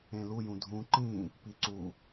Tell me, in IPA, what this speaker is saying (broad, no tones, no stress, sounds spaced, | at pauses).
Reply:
ẽ l u j ũ dʱ ũ ǃ ĩ | p i ǀ u